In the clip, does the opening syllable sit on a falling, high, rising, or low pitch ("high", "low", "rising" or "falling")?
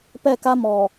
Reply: falling